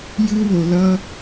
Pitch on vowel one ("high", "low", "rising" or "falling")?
high